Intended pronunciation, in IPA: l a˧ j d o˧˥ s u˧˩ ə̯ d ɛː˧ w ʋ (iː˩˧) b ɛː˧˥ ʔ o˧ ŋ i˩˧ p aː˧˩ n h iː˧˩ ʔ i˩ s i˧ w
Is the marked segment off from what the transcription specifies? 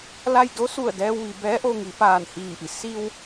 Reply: yes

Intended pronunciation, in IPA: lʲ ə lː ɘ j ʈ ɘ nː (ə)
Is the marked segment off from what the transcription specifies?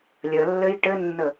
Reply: no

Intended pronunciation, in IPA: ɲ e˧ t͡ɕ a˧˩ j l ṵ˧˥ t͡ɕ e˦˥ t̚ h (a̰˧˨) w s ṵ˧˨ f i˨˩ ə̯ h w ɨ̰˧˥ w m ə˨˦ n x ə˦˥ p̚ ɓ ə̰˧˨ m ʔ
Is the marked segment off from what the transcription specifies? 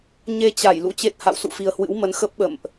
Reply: no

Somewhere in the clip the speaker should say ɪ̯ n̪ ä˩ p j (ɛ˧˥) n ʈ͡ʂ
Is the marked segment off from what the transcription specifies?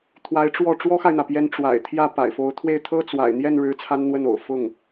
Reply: no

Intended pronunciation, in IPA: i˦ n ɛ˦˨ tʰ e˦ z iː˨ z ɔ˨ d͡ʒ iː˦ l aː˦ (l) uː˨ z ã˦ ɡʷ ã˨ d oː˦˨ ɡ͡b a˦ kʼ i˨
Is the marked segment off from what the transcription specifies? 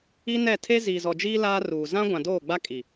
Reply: yes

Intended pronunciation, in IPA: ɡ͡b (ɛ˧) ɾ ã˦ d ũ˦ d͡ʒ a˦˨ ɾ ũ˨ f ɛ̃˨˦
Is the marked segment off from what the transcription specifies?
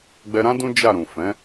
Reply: no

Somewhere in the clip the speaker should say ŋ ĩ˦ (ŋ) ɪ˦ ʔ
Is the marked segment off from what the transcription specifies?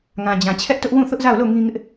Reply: no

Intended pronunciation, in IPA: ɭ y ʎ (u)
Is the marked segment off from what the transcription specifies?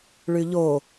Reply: yes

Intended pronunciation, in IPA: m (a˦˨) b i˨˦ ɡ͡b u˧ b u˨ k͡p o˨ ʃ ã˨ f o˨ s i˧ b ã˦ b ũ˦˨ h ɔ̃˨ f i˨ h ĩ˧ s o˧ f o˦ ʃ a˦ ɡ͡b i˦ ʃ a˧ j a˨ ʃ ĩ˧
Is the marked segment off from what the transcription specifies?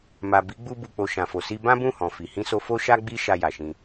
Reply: yes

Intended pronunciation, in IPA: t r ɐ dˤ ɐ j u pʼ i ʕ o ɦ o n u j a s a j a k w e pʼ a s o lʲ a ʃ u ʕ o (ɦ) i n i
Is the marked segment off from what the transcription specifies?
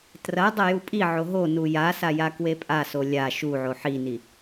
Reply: yes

